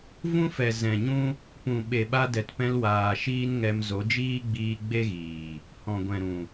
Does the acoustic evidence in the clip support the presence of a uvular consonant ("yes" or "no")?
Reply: no